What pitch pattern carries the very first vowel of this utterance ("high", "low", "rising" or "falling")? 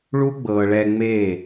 high